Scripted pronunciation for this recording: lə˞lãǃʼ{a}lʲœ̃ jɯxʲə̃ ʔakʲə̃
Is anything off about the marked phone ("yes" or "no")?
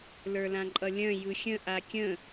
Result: yes